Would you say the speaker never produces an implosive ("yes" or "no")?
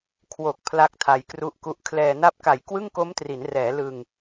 yes